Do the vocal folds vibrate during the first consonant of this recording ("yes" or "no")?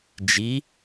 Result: yes